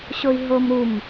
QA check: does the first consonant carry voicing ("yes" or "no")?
no